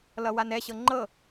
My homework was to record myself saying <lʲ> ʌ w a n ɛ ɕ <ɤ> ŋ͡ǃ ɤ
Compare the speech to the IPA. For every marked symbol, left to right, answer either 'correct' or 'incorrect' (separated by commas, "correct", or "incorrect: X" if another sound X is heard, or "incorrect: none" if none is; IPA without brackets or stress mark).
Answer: incorrect: l, correct